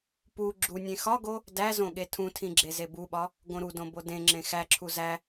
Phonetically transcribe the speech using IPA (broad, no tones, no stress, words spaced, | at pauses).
pu ɡ͡ǁunʲẽ xɒɡo | dæzõ ɠetʰũtʰĩ ɡ͡ǁezebuɓɒ | ɡõɾudõ bodẽŋ͡ǁẽ xæǁʰu zæ